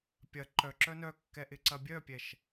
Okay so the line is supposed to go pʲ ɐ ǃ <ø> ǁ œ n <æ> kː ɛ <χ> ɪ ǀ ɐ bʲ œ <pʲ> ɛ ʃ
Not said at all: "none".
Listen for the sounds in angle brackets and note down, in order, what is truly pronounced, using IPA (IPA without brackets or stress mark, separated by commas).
œ, œ, ʔ, pʲ